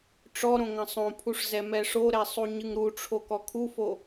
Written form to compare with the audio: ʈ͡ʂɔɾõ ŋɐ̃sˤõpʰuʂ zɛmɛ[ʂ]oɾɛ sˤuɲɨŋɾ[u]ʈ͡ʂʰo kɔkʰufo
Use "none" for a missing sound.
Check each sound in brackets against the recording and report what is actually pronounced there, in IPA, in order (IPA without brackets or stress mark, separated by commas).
ʂ, u